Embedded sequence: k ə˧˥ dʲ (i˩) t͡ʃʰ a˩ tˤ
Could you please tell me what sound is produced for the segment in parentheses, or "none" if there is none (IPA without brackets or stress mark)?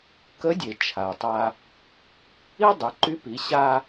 e˩